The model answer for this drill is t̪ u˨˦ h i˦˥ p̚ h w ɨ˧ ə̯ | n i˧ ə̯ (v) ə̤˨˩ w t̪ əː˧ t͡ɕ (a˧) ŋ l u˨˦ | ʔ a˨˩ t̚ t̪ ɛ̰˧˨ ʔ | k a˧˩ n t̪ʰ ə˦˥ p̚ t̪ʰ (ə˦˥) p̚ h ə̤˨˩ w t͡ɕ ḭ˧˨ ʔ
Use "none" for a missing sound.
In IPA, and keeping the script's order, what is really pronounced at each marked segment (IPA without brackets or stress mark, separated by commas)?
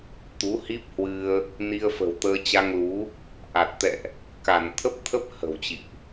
f, a˧, ə˦˥